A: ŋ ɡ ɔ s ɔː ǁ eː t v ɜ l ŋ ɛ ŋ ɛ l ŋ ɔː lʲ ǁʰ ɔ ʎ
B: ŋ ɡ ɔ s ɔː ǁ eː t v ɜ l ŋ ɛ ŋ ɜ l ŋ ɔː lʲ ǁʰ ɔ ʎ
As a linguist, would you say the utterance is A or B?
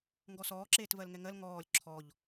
B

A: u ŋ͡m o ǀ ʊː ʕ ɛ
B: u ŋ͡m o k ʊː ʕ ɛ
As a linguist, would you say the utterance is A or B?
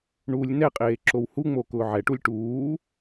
B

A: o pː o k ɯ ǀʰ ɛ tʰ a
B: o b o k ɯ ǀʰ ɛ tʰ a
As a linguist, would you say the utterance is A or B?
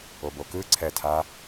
B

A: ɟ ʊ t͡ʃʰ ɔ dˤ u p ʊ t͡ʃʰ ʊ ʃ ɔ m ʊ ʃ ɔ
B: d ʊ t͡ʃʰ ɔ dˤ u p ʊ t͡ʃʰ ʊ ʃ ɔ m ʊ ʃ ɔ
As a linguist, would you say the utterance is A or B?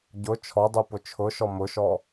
A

